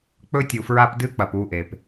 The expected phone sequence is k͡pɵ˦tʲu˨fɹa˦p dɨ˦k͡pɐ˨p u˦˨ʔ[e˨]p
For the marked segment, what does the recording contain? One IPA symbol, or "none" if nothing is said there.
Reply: e˨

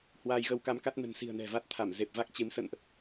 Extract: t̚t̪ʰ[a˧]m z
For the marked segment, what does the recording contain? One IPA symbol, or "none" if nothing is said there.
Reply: a˧˩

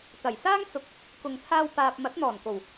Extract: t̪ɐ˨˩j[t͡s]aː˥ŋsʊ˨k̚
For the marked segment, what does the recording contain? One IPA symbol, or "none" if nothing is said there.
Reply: s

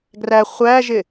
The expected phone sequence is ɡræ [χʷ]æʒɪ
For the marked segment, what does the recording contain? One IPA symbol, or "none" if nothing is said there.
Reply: χʷ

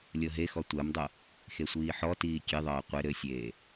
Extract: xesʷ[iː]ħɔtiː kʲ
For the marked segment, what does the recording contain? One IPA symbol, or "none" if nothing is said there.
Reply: iː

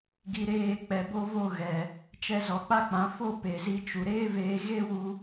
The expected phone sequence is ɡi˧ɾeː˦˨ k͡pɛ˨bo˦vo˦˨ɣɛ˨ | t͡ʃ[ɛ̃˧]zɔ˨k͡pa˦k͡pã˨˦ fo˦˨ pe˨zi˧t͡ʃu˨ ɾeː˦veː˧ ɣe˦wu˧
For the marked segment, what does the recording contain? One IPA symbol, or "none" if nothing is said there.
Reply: ɛ˧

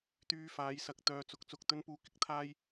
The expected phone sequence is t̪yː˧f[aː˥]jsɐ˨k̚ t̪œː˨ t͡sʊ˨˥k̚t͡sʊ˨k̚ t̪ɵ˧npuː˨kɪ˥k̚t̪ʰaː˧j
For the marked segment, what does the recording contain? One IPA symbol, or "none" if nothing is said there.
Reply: aː˨˧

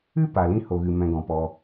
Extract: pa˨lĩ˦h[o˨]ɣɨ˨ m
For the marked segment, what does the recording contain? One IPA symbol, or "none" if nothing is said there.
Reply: o˨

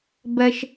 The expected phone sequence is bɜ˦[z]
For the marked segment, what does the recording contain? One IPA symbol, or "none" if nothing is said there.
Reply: ʃ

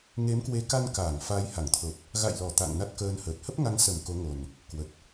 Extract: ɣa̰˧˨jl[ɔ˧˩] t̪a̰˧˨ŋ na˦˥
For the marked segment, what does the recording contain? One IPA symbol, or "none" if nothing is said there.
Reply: ɔ˧˩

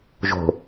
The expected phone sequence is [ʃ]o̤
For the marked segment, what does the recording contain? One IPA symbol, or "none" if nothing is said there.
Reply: ʒ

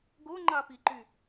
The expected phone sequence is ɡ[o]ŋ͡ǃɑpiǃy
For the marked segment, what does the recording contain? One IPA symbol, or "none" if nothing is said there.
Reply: o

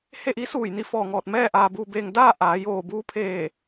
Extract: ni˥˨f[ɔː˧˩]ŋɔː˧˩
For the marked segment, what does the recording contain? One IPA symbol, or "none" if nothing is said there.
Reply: ɔː˧˩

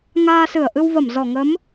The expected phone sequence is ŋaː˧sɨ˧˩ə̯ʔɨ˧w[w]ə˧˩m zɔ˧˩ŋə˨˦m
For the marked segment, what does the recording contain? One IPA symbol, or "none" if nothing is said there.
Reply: v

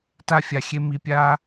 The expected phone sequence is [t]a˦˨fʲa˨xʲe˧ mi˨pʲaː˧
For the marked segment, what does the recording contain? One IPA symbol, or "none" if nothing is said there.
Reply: t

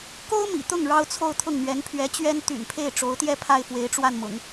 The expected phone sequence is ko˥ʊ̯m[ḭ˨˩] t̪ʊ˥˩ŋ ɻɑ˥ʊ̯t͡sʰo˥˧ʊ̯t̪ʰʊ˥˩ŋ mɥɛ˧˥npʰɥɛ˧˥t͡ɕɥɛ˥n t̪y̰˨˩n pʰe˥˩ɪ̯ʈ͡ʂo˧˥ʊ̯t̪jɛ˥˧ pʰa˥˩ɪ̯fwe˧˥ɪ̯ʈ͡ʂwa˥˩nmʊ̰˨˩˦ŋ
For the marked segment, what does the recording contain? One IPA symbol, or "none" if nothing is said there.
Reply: ḭ˨˩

